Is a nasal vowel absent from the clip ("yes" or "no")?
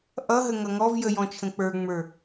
no